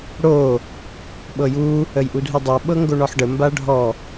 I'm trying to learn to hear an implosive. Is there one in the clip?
yes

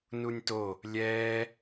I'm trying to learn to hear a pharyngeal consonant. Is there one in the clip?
no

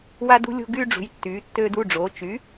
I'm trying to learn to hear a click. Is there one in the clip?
no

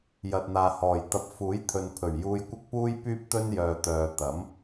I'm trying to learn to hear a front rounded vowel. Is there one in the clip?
yes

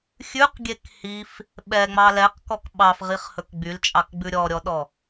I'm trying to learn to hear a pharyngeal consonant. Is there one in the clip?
no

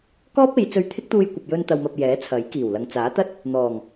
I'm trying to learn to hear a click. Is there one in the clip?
no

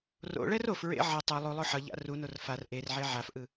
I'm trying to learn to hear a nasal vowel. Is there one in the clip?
no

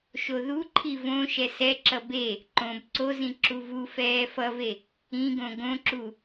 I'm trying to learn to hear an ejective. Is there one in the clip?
no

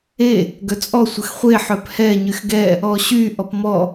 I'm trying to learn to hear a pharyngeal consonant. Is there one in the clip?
yes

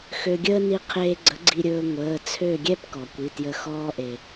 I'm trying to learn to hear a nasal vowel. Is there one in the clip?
no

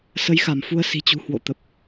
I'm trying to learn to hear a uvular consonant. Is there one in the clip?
no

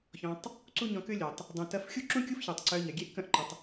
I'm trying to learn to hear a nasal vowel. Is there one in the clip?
yes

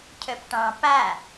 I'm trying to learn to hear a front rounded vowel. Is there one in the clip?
yes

